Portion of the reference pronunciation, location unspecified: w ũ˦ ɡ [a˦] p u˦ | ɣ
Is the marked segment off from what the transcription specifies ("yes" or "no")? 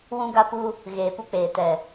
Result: no